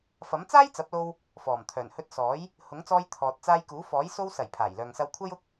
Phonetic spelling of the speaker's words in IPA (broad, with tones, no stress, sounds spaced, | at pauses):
f ɐ˨˥ m t͡s aː˥ j t͡s ɐ˨˥ p̚ l o˧ w | f ɔː˨˩ m t̪ʰ œː˨˩ n h ɵ˧ t̚ s ɔː˨˥ j | h ʊ˨˥ ŋ t͡s ɔː˧ j t̪ʰ ɔː˨ t̚ t͡s aː˧ j k uː˨˥ f ɔː˨˥ j s o˧ w s ɐ˨˩ j pʰ aː˨˩ j l œː˨ ŋ s ɐ˧ w kʷʰ ɐ˥ j ʊ˥ k̚